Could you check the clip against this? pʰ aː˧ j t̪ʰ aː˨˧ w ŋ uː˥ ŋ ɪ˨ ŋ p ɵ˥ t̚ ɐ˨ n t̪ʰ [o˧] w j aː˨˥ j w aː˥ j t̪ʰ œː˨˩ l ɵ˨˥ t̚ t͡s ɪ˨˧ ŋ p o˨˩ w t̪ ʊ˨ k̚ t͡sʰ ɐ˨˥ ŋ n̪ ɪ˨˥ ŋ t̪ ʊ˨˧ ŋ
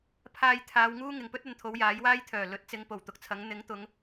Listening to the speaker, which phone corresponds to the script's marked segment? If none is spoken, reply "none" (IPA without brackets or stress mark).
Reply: o˨˧